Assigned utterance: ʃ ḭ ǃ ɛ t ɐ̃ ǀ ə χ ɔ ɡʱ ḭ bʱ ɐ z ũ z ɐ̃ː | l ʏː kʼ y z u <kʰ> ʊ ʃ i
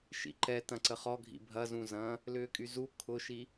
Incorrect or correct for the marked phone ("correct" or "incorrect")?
correct